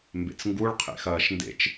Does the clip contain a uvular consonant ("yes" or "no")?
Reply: yes